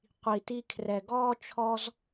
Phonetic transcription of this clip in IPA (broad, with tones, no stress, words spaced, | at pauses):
qʷi˩ti˧ kʰrɛ˩ɡɔː˥ t͡ʃʰɔ˥z